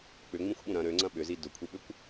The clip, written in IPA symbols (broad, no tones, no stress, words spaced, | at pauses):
k͡pʏŋ͡mĩxʷɓũ ɾɐ̃ ɾøŋ͡ǀɐ̃ ɓʏzi dʊkʷʰiɓʏkʷ